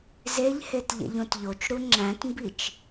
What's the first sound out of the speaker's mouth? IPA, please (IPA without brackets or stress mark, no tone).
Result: z